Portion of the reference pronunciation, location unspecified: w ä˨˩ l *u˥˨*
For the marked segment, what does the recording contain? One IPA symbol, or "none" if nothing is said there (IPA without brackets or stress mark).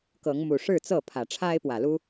u˦